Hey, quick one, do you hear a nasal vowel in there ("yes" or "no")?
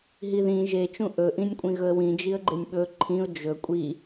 yes